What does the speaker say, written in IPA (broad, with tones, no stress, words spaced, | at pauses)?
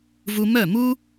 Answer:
vu˧mœ˥˩mu˥